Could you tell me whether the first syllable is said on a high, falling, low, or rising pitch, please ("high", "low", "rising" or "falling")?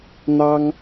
high